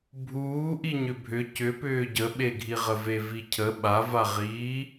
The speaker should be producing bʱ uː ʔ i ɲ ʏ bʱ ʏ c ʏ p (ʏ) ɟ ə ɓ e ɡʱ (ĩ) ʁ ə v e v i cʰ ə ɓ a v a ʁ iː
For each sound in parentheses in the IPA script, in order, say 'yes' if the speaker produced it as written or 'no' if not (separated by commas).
no, no